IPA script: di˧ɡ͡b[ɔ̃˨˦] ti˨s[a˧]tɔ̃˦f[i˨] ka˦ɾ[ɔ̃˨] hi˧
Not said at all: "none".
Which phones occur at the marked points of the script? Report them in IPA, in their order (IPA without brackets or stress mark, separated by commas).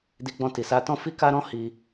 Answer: ɔ̃˧, a˧, i˦, ɔ̃˦